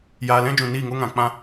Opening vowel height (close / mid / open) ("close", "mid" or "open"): open